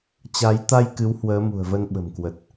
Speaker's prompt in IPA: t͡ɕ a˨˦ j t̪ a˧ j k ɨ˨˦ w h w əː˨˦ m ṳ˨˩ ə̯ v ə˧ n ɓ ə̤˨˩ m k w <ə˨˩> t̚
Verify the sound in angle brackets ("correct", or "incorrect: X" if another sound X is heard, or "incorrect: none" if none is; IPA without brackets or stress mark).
correct